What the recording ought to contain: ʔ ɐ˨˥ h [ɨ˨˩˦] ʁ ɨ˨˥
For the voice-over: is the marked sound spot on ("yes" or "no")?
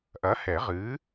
no